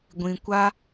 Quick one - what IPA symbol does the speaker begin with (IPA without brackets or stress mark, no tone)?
ɡʷ